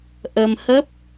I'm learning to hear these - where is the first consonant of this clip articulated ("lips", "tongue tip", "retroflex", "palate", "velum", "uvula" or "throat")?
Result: throat